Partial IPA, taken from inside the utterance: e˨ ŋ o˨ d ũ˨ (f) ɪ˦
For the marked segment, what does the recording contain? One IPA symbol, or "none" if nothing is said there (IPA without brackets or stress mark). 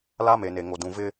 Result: v